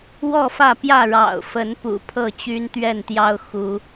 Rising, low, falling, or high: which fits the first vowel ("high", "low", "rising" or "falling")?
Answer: falling